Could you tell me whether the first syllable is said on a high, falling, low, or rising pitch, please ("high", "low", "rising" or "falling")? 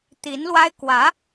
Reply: rising